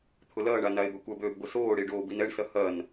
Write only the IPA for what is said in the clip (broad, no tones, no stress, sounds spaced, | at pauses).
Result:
t̪ʰ ʊ l ɐː ɳ a n a e̯ b ø kʷ ɐ b øː b ɡʷ ə s oː ɽ i ɖ oː b i n ɛ ɳ s ɐ h ɐ n